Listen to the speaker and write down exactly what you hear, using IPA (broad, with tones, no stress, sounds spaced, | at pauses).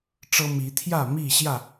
ʈ͡ʂ ɤ˦ m i˨˦ t̪ʰ j ä˥˨ m i˥˨ ɕ j ä˥˨